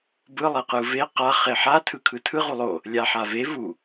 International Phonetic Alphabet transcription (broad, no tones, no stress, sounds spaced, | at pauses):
b ɯ lˠ e q ɯ v e q a χ e ħ a tʰ ɯ kʰ ɯ tʰ ɯ ʁ u lˠ o | lʲ a ħ a v e v u